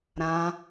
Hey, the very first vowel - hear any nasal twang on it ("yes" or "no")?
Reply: yes